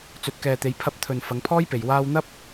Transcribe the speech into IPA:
t͡s ɵ˨ t̚ k ɛː˨ t̪ e˨˧ j pʰ ɐ˧ p̚ t̪ʰ ɵ˨ n f ɐ˨˧ ŋ pʰ ɔː˥ j p e˨ j w aː˧ w n̪ ɐ˥ p̚

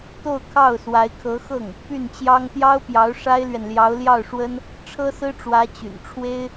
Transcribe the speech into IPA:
t̪ o˥˧ ʊ̯ kʰ ɑ˥˩ ʊ̯ s w a˧˥ ɪ̯ kʰ ɤ˧˥ x ɤ˥˩ ŋ | p y˥˩ n t͡ɕ j ɑ˥ ŋ t̪ j ɑ˥ ʊ̯ p j ɑ˧˥ ʊ̯ ʂ a˥ ɪ̯ l ɥ ɛ˨ n l j ɑ˧˥ ʊ̯ l j ɑ˥˩ ʊ̯ ʂ w ə˥ n | ʈ͡ʂʰ ɤ˥ s ɹ̩˥ ʈ͡ʂ w ä˧˥ t͡ɕ y̰˨˩ n ʈ͡ʂʰ w e˥ ɪ̯

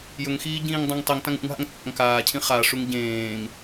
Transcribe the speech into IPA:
j ɵ ŋ x iː ɟ ĩː ŋ dˤ ã ŋ tˤ i ŋ t ã ŋ ṵ ŋ ɦ a̰ ŋ t͡sʼ a̰ ŋ k aː cʰ ĩ χ a ʂ u ŋ ɟ ẽː ŋ

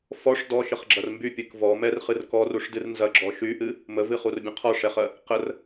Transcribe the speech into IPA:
f ɔ ʂ d ɔ ʃ ə χ ɡ͡ǁ ɐ r m b y pʲ ɨ k v ɔ m ɛ r χ ɨ r k ɔ r u ʂ d ɨ r n z ɐ ɡ͡ǁ ɔ ʃ y ʔ ɨ | m ə v ɨ χ u r bʲ ɐ̃ qʰ ɔ ʂ ɛ χ ɜ | q ə r

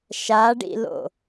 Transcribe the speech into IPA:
ʃ a ɖ ḭ l o̰

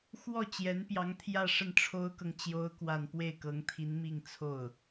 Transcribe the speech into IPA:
x w ɔ˥˩ t͡ɕ j ɛ˧˥ n p j ɑ˧˥ ŋ t̪ʰ j ä˥˧ ʂ ə˥˩ n ʈ͡ʂʰ o˥ ʊ̯ k ɤ˨ ŋ t͡ɕ j o˥ ʊ̯ k w a˥˧ n p w e˥˩ ɪ̯ k ɤ˧˥ ŋ t̪ʰ i˧˥ n m i˥˧ ŋ t͡sʰ o˥˩ ʊ̯

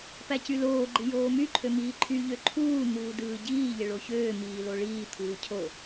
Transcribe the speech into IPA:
p æ c y l oː ɡ͡ǃ i j oː m y ǃʰ ø m iː ǃʰ y ʎ ø ǃʰ uː n̪ uː d ɯː ɟ iː ʎ e ɭ o ç øː m iː l o ɭ iː t̪ʰ uː cʰ o

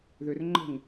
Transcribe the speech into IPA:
ð ʏ r ŋ͡ǃ ə̤ ŋ

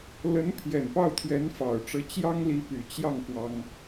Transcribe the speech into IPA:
l ə˧˥ n pʰ j ɛ˨˩ n p ɑ˥˩ ʊ̯ t̪ʰ ɥ ɛ˧˥ n f ɑ˨˩ ʊ̯ ʈ͡ʂ ɤ˧˥ t͡ɕ j ɑ˥ ŋ l i˧˥ p y˨˩ t͡ɕ j ɑ˥˩ ŋ f w ɑ˥ ŋ

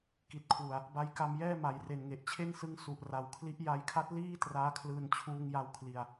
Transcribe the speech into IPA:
k i˨˩ t̚ kʰ w u˨˩ a̯ | b a˧ j k a˧ m j ɛː˥˩ m a˨˩ j r e˨˩ n ŋ e˨˩ ʔ t͡ɕʰ e˥˩ n s ɯ˦˥ ŋ s u˨˩ ʔ r a˩˦ w kʰ l i˦˥ ʔ j a˧ j kʰ a˦˥ t̚ l iː˥˩ t r aː˦˥ kʰ l ɯː˧ n t͡ɕʰ uː˧ ŋ j a˧ w kʰ l i˨˩ a̯

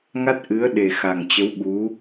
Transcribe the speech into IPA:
ŋ a˦˥ t̚ ʔ ɨ˨˦ ə̯ ɗ e˨˩ x a˨˩ ŋ t͡ɕ ə˨˦ w ɓ u˨˦

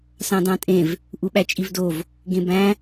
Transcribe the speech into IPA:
s ɑ̃ d ɑ̃ tʼ ẽ v | ʔ u ɓ æ t͡ʃʼ i v d o v | ɡ ẽ b æ̃

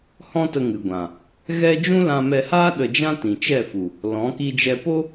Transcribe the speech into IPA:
h ɔ̃˦ t ə˧ ŋ ɨ˨ ɡʷ ã˨ | ɣ ɛ˦ d͡ʒ ũ˦ l ã˧ m ɛ˧ h aː˦ ɗ ə˧ d͡ʒ ã˦ t ĩ˨ t͡ʃ ɛ˦˨ f u˨ | l ɔ̃˨˦ k i˧ d͡ʒ ɛ˧ p o˦

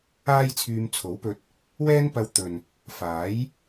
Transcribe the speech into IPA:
aː˥ j t͡sʰ yː˧ m t͡sʰ o˨˥ w p ɵ˧ t̚ | w ɛː˥ n p ɐ˧ w t̪ ɵ˨ n | f aː˨˥ j

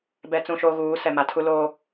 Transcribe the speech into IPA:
b ɛ˦ t͡s ũ˦ ʃ o˦ ɣ uː˨˦ s ɛ˨ m a˨ tʰ u˦ l oː˦

